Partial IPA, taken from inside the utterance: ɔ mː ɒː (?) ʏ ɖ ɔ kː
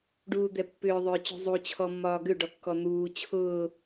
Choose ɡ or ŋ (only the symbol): ɡ